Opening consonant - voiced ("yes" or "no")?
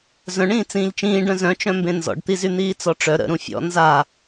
yes